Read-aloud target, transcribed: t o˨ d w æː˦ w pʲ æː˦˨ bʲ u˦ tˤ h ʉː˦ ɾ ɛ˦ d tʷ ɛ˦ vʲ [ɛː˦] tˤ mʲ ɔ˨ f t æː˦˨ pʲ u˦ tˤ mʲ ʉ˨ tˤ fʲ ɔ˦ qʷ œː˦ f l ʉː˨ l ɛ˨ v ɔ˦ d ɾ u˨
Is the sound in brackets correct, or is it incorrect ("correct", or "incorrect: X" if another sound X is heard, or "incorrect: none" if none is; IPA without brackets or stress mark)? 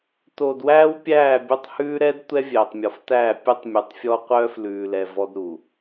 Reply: incorrect: ɛː˨